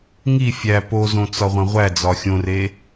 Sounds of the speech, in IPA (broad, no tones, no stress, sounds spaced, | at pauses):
ŋ i fʲ æ p o z õ t͡s ɒ ʁʷ æ̃ ʁʷ æ d͡z ɒ xʲ õ r e